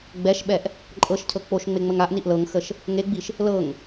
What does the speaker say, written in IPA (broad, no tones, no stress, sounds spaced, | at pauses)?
ɡ͡b ɛ ʃ ɓ ɛ ʔ | ǃʼ ɤ ʃ cʰ ɤ k͡p o ʃ ŋ͡m e ŋ͡m ə ŋ a ʔ n i ʔ l ɤ ŋ x ə ʃ | ŋ e ɡ͡b i ʃ | l ɤ ŋ